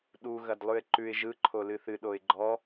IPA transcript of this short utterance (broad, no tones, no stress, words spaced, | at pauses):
ɗu ɣɐdlˠʉɪ̯ǃʉɪ̯ ʒɯ ǃʰolɨθɨ ɗoɪ̯ɡ͡ǃɔ